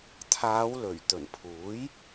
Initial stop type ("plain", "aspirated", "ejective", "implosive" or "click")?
aspirated